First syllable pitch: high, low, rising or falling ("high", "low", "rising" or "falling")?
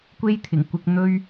high